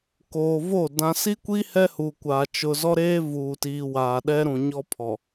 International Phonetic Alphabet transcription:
k oː˨ v o˦˨ d ã˨ s i˦ kʷ i˦ h ɛ˦ h u˨ kʷ aː˨ t͡ʃ ʊ˨ z ɔ˦ ɾ eː˦ v uː˨ t iː˨ w aː˨ ɗ ɛ˦ ɾ ũ˨ ɲ ɔ˦ pʰ ɔ˨

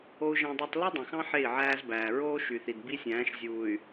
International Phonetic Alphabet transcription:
o˦ u̯ ʒ æ̃˦ dˤ e˦ tˤ l i˦ dˤ ẽ˨ x ɑ̃˦ ħ e˦˨ i̯ ʕ æː˦ z b æː˨ ɹ oː˦ ʃ y˨ θ i˨ d b i˦ sʲ æ̃ː˨˦ ʃ zʲ uː˨ y̯

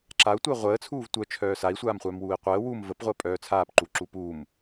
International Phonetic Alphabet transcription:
ǁ a u̯ tʷ əː ʁʷ əː t͡sʰ uː v tʷ œ t͡ʃʰ œː s a i̯ sʷ aː m χʷ œː m w uː i̯ qʷ əː w u m v ə p ʁʷ əː pʼ œː t͡sʰ aː p ǃ u ǁ u p uː m

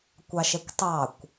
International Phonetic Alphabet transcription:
kʷ ɑ ʃ ɛ kʷ tˤ ɑ kʷ

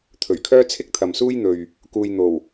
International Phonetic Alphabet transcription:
t̪ʰ ɵ˨˩ ɥ kʰ œː˥ t͡sʰ ɪ˥ k̚ t̪ʰ ɐ˨ m s uː˥ j n̪ ɵ˨ ɥ | k uː˧ j n̪ o˨˩ w

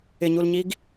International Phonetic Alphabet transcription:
ɪ ɲ u l ɲ i ɡ

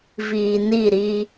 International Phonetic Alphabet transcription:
v iː˨ n i˦˨ ɾ iː˦

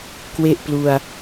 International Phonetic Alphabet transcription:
k w e˥˩ ʔ p l u˧ a̯

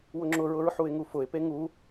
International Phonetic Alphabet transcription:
w ʊ ŋ͡ǁ ʊ ɹ ʊ ɹ ħ u ɪ̯ ŋ u f ʊ ɪ̯ p e ŋ u

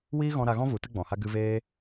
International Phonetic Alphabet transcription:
w iː˦ ɣ ɔ̃˧ ɾ a˧ ɣ ɔ̃˦ v u˨˦ t ɨ˦ ɡ͡b ɔ̃˨ h a˦ ɡ ɨ˧ v eː˦

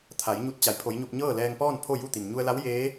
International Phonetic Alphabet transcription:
t̪ʰ a˩˧ j ɲ u˧ t̚ t͡ɕ a˩˧ j pʰ o˩˧ j ɲ o˧ p̚ ɲ ɤː˥˨ l ɛː˧ ŋ p ɔː˥˨ n pʰ o˥˨ j u˥˨ t̪ i˩ m ɲ u˧ ə̯ l a˧˥ w j eː˧˥

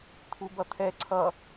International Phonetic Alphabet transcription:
t̪ʰ u b ʌ t̪ʰ ɛ ǀʰ ʌ

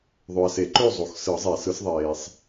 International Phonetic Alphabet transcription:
ðˤ ø˨ ɐ̯ s e˨˩˦ ǃ ø˥˩ zˤ o˨ x s ɯ˨˩˦ zˤ e˨˩˦ s ɯ˨˥ s ðˤ eː˨ sˤ

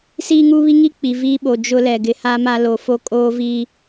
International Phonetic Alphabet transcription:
s iː˦ ŋ uː˦ β i˦ ŋ i˦ k͡p i˨ v iː˦ ɓ o˨ d͡ʒ ʊ˦ l ɛ˨ ɡ ɪ˨ h a˦ m a˦ l oː˨ f o˦ kʼ oː˦ v i˦

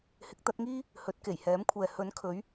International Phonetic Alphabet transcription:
h ɪ˨˥ k̚ t̪ ɐ˨˥ t̚ ŋ iː˥ | h ɵ˨˥ t̚ k e˨˩ j h ɛː˨˥ m kʷʰ ɛː˨ h ɵ˨˥ n kʰ ɵ˨˥ ɥ

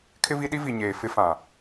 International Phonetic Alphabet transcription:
kʰ ɪ˦ v i˦ ɗ i˦ v i˨ ɲ eː˨ f ɪ˦ f ã˨

